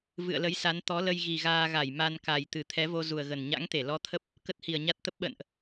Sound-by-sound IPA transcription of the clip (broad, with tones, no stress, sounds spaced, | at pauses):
v ɨ̰˧˨ ə̯ l ə˨˦ j s a˨˦ n t̪ ɔ˨˦ l ə˧ j ɣ i˨˩ ɣ aː˧ ɣ a˧˩ j m a˧ n k a˨˩ j t̪ ɨ˨˩ t̪ʰ ɛ˨˦ v o˧ z u˨˩ ə̯ ɣ ə˨˩ n ɲ a̰˧˥ ŋ t̪ e˧˩ l ɔ˧ t̪ʰ ə˦˥ p̚ | k ə˦˥ t̚ h i˧˩ ə̯ ɲ a˦˥ t̚ t̪ ə˦˥ p̚ ɓ ə̰ː˧˨ n ʔ